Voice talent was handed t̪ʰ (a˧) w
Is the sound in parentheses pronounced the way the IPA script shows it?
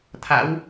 no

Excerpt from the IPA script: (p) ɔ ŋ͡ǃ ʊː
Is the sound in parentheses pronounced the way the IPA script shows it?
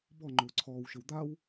no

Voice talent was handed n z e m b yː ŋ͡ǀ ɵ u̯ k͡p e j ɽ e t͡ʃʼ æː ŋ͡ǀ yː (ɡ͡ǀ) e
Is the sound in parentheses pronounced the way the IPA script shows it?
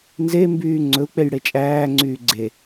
yes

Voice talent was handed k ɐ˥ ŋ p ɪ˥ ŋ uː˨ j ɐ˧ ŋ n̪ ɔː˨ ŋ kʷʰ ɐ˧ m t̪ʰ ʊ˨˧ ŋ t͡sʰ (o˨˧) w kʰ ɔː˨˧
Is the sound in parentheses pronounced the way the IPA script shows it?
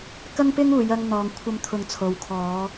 no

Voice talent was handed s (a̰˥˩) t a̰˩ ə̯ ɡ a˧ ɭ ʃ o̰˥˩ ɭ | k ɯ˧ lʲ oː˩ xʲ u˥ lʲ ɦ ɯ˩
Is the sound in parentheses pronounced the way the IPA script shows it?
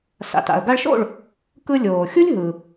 no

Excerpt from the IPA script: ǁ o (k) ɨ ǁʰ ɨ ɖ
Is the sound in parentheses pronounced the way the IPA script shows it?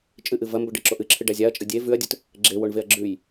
no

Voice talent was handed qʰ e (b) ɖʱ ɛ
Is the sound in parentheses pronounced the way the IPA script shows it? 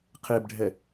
yes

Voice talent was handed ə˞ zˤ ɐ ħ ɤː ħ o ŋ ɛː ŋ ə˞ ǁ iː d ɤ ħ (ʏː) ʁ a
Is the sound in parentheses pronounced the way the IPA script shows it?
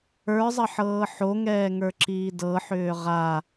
yes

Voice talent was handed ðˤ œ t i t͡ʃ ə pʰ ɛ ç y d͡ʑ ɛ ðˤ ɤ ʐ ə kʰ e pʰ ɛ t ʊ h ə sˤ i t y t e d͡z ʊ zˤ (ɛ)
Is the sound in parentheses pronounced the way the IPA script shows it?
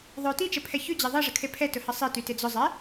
yes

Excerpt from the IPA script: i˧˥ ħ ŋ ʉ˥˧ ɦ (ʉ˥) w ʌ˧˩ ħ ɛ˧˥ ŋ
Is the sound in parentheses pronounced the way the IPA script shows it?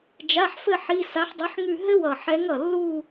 no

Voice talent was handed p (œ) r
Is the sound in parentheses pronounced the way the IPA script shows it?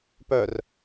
yes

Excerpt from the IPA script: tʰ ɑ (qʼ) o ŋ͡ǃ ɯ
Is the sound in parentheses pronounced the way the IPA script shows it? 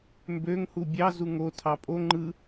no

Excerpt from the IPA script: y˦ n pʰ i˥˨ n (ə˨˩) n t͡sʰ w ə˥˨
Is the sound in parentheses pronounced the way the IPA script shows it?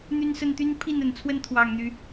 yes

